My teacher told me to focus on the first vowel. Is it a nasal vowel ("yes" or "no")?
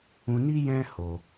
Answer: yes